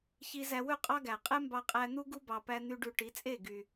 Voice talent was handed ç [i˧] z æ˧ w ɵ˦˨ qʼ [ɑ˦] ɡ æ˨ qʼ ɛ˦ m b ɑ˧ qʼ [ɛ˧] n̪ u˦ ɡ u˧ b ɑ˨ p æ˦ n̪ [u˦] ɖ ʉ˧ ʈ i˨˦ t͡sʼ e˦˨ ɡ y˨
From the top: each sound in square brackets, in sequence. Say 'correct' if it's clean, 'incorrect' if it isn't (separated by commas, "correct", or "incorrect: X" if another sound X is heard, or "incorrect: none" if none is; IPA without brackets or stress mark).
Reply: correct, correct, incorrect: æ˧, incorrect: y˦